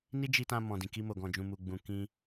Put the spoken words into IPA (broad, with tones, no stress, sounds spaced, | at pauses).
n i˦ d͡ʒ i˧ t ã˧ m ɔ̃˨ d ĩ˨ k i˧ m o˨ ɡ ɔ̃˨ d͡ʒ ũ˨ m u˨ ɡ͡b ũ˨ k ĩ˧